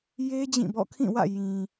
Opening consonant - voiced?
yes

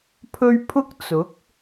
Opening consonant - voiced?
no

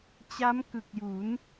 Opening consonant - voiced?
no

